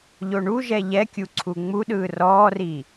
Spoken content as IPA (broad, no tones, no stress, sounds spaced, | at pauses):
ʎ o ɳ u ʒ ɛ ʎ ɛ kʲ u ǀʰ u ŋ͡m u ɗ ɯː r ɔː r i